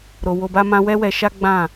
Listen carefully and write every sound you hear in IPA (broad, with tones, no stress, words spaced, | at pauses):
ɾo˨wo˧ba˦mã˦ wɛ˦wɛ˧ʃa˦ ɡ͡bã˦˨